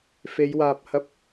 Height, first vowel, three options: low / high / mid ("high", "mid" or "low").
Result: mid